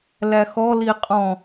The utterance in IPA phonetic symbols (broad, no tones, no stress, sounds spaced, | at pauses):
l æ x ɔ l i qʼ ɔ̃